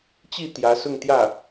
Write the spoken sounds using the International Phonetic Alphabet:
t͡ɕi˥˩ t̪jä˧˥sʊ˥˧ŋ t̪jä˥˩

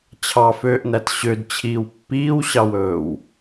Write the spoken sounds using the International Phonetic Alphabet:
t͡ɕʰɑføːʔnæt ɕødt͡ɕʰiːw pːiːwɕɑwɵːw

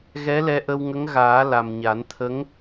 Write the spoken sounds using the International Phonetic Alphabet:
ɣɛ˧˥lɛ˧ʔə˧wŋə˧˥ŋ ɣaː˨˩˦ la˨˩mɲa˨˩˦nt̪ʰə˧˥ŋ

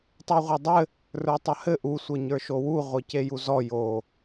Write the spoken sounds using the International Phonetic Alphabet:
tˤə˞ʁʷedˤɘ | rə˞tˤɐhɘ ʔu sʷɘɲə˞ʃowu ʁʷicejuzɔ jo

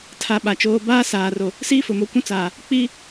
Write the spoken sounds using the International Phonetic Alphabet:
tʰa˨ ɓa˨t͡ʃoː˦ baː˦saː˨ro˨ | siː˦fʊ˨mo˨kʷũ˦ t͡saː˨ | k͡piː˦

